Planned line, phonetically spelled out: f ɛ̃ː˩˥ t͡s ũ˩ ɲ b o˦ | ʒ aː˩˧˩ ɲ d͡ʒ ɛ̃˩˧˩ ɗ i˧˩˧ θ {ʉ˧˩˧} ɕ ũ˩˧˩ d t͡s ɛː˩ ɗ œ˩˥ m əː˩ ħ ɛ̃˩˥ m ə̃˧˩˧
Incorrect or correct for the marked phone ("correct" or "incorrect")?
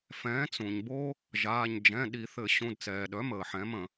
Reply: incorrect